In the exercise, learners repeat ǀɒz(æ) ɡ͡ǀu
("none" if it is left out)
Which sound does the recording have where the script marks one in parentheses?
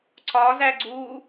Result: æ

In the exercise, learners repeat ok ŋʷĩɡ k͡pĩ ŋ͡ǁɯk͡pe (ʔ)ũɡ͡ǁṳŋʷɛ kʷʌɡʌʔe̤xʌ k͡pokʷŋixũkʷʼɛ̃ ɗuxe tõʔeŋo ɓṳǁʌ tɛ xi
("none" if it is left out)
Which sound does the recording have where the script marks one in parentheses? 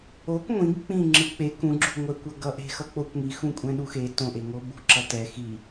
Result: k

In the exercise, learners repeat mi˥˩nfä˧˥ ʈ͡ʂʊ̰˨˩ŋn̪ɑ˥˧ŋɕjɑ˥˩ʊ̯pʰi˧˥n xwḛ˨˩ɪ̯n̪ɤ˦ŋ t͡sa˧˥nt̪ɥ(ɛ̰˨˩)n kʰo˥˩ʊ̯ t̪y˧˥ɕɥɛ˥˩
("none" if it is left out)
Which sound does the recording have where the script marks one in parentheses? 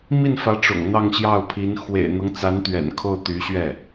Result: ɛ̰˨˩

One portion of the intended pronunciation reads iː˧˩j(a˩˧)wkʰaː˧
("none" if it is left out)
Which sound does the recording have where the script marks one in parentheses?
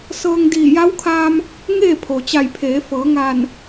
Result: a˧˥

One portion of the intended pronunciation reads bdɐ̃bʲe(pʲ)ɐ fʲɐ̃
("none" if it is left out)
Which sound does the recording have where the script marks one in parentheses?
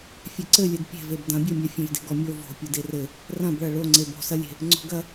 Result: mʲ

